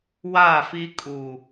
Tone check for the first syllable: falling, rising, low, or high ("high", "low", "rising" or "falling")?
falling